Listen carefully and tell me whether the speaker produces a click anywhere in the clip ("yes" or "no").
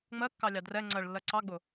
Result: yes